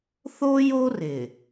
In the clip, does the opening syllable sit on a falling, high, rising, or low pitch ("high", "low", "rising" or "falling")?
high